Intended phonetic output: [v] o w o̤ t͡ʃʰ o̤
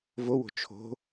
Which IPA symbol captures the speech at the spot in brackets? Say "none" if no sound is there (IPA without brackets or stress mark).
v